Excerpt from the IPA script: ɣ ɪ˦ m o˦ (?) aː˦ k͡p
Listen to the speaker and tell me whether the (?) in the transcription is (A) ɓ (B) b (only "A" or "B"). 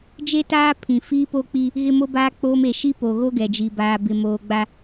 B